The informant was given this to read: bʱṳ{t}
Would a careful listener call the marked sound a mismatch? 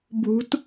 no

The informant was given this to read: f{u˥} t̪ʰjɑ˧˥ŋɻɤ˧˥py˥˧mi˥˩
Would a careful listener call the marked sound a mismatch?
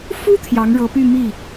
no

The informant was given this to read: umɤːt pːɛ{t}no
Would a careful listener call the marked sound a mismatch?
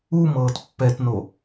no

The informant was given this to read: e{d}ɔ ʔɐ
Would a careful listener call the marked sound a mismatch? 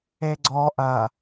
yes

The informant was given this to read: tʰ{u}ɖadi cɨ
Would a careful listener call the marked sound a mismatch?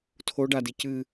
yes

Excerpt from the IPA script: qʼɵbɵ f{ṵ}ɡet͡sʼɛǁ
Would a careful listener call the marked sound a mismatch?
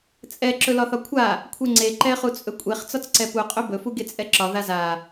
yes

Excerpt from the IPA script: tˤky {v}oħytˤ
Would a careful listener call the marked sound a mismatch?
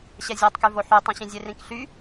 no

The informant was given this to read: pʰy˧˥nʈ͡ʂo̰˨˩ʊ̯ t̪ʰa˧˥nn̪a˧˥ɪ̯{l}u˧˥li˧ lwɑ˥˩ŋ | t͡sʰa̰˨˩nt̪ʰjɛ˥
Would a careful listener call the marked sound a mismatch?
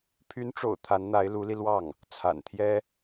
no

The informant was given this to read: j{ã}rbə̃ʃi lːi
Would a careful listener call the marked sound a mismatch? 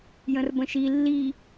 yes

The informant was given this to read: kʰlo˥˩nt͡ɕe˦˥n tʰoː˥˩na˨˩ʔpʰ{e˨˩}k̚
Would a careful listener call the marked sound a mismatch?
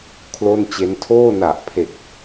no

